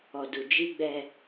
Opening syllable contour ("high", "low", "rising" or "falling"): low